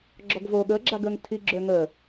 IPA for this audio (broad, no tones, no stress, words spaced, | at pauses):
ɡ͡ǁɔɡvo ɠəːɡ͡ǁaɡəːŋ tʰiɡ͡ǁøː ŋəː